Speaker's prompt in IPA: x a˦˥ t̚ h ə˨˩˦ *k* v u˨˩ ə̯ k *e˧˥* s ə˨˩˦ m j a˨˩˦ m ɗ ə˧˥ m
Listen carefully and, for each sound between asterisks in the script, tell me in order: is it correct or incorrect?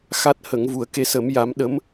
incorrect, correct

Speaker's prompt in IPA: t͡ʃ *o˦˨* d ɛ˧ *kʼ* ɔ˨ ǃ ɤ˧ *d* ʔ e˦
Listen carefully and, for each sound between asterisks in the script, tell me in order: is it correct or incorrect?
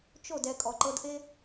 correct, correct, correct

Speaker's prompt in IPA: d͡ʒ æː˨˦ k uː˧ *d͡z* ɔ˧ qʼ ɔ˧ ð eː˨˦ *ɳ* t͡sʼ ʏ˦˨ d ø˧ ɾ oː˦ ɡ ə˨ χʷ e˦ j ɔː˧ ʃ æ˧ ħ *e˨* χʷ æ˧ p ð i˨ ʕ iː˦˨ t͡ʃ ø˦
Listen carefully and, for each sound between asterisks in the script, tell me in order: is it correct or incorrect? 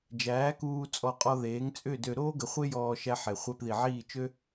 incorrect, incorrect, correct

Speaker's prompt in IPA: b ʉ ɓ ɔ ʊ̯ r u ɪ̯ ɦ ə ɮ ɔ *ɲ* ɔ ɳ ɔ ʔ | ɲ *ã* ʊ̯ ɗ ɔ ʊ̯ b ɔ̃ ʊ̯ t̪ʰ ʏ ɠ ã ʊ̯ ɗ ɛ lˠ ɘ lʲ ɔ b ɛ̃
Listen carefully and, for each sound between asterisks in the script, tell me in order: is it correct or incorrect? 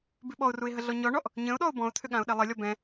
correct, incorrect

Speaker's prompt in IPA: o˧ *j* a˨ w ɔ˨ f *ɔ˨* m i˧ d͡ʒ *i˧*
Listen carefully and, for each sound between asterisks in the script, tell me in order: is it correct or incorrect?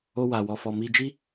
incorrect, correct, incorrect

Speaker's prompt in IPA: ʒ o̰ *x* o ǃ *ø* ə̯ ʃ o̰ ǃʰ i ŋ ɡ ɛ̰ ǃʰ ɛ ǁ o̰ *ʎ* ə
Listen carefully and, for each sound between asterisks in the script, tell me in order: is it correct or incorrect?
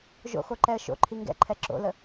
correct, incorrect, incorrect

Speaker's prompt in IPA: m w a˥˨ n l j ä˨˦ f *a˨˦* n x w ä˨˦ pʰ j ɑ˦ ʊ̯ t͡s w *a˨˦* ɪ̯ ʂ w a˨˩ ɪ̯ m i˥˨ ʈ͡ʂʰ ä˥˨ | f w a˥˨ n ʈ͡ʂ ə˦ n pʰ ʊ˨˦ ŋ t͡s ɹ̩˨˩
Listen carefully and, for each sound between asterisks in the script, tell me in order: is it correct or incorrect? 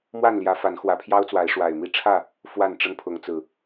correct, correct

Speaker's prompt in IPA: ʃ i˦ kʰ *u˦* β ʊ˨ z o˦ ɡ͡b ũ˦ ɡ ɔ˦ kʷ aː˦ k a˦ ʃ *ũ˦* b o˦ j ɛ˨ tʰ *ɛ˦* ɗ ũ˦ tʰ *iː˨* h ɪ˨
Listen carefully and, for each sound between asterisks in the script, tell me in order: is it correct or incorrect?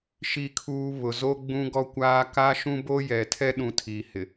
incorrect, correct, correct, correct

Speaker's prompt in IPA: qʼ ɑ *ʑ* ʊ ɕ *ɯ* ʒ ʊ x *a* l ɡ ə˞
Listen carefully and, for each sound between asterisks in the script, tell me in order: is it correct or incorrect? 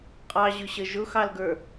correct, incorrect, incorrect

